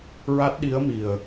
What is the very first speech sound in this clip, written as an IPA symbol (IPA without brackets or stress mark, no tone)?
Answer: ɹ